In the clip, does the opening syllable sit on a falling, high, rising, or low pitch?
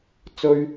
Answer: high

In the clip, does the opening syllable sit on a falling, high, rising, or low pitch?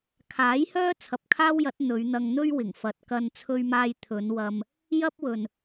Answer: rising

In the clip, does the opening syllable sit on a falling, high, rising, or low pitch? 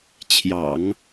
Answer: low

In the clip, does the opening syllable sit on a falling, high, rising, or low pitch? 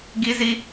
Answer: high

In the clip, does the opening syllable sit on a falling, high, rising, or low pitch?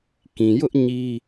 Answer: low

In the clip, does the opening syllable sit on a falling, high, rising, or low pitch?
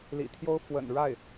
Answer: low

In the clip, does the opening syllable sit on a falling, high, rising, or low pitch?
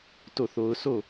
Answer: falling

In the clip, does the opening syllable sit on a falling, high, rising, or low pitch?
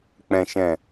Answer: low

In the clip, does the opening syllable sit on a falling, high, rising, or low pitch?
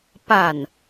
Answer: low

